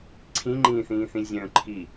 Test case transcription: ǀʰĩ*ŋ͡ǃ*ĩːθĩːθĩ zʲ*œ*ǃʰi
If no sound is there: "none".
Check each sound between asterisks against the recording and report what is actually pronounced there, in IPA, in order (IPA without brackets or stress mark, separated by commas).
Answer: ŋ͡ǃ, œ̃